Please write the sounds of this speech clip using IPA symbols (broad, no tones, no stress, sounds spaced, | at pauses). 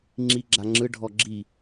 ŋ͡ǁ i ɡ͡ǁ a ŋ͡ǁ ɯ ɖʱ ɔ ɡ͡ǁ i